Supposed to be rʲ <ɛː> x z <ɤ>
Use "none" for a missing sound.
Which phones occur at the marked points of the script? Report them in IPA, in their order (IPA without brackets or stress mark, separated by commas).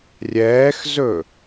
ɛː, ɵ